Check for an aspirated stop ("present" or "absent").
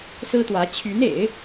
present